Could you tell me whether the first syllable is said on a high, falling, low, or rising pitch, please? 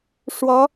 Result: rising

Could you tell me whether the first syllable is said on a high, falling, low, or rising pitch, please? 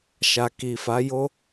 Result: low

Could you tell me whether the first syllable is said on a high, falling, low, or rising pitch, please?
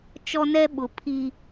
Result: high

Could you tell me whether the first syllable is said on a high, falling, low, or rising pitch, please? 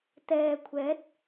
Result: low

